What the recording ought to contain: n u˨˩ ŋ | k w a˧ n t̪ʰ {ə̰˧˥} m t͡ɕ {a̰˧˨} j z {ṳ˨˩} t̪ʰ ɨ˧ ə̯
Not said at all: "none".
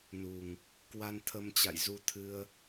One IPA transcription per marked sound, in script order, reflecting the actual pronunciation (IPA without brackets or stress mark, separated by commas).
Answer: ə˧, a̰˧˨, u˧